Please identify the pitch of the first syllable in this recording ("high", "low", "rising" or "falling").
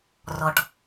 low